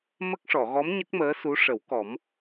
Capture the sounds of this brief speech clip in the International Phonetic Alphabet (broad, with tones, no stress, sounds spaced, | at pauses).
m ə˦˥ k̚ ʂ ɔ˨˩˨ ɣ ɔ˧˥ m ɲ ə˦˥ k̚ m əː˧˥ s u˧˥ ʂ ə˨˩˦ w k ɔ˨˩˦ m